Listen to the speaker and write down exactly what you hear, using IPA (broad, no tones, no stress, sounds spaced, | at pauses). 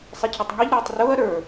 sˤ ɪ cʰ ʊ tˤ ŋ i ʎ ɾ uː tˤ r ʊː ɐ̯ ɾ ə˞